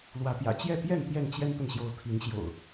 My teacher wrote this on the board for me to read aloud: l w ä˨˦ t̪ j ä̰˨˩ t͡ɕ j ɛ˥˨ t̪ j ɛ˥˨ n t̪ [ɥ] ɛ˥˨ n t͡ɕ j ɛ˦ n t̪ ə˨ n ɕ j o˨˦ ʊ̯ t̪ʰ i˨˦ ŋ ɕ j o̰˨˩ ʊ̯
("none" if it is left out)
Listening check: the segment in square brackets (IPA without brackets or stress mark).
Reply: j